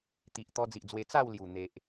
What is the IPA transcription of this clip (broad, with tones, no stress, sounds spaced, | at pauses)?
t̪ i˨ ʔ t̪ ɔ˧ d͡z i˨ ʔ d͡z w e˧ t͡s a˥˧ w l j u˨˩ n̪ e˨ ʔ